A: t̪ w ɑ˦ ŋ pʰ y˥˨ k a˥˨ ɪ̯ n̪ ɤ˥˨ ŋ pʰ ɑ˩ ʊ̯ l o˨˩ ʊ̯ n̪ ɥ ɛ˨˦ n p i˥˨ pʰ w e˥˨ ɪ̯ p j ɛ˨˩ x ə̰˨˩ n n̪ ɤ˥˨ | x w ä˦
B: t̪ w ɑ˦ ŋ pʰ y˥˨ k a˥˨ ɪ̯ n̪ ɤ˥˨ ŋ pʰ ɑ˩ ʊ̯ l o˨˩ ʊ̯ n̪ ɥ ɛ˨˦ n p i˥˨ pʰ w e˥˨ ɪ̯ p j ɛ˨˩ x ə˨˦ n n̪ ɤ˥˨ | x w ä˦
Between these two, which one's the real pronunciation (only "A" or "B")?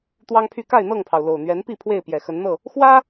B